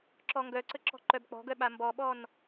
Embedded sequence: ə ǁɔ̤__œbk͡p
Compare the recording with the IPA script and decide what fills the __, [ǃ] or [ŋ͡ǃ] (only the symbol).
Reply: ǃ